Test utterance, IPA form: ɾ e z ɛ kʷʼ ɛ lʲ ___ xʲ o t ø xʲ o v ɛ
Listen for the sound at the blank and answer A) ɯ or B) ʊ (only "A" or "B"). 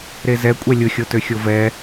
B